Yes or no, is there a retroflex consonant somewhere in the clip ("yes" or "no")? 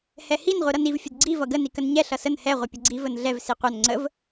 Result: no